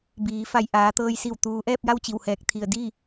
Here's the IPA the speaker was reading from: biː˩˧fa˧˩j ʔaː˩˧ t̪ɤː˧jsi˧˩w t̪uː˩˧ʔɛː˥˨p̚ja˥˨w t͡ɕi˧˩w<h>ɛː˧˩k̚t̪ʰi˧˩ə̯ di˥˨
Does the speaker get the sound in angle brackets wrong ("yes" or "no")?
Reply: no